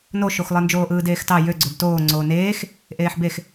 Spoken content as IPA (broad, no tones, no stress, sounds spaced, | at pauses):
n o ʃ o x lˠ ɯ n d͡ʒ oː ʔ ɯː d eː x t ɑ j ø ɡ͡ǀ ø b t oː ŋ͡ǀ oː n eː x | ʔ eː ħ b e x